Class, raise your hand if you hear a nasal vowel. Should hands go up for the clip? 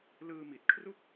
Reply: no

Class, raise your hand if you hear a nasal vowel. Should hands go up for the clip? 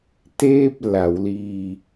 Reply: no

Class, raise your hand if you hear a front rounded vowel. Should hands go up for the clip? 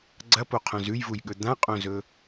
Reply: no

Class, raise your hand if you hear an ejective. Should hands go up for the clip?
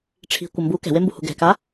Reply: no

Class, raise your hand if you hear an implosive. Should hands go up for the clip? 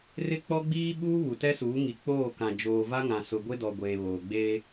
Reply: yes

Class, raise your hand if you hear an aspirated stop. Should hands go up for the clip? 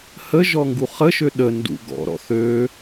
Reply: no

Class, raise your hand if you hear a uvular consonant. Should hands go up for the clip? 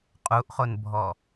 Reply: yes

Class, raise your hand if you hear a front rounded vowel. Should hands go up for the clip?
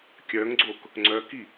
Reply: yes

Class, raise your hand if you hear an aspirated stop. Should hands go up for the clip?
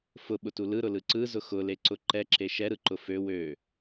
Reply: no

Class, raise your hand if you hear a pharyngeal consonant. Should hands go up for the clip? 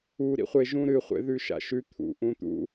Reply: no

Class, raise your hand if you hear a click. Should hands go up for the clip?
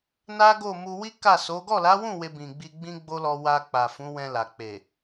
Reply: no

